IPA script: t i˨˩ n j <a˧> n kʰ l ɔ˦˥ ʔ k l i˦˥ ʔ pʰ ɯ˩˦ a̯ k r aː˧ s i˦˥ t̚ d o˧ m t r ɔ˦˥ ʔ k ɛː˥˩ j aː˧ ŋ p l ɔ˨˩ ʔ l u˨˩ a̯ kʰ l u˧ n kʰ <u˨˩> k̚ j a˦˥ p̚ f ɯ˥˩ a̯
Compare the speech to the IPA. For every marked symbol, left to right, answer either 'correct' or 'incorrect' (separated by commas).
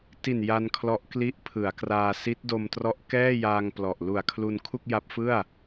correct, incorrect